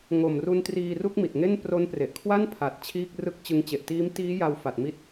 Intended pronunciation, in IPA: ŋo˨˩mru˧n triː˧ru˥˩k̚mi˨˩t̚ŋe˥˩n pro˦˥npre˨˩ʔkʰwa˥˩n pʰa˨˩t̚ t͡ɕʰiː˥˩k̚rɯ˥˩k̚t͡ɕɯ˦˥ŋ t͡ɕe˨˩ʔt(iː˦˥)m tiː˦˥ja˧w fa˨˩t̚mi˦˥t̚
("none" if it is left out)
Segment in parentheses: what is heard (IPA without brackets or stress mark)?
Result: iː˦˥